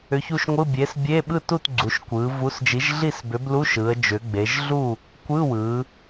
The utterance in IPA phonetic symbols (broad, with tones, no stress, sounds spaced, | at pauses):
ʏ˨˥ ç u˥˨ ʃ ŋʷ ɯ˧˥˧ bʲ e˨˥ s bʲ e˧˥˧ ɓ ɯ˥˨ t u˥˨ t ɡ͡ǀ u˩˧ ʃ kʷ ɯ˩˧ v u˨˥ s d͡ʒ i˨˥ ʒ ɮ i˥˨ s b ʏ˨˥ b l u˧˥˧ ʃ ɯ˩˧ ə̯ d͡ʒ ʏ˩˧ ɡ͡b e˩˧ ʒ ɮ u˥˨ | kʷ ɯ˧˥˧ w ɯ˩˧